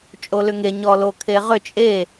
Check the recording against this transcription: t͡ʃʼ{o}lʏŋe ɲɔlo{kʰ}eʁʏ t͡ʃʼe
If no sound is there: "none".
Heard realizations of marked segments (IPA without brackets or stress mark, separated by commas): o, kʰ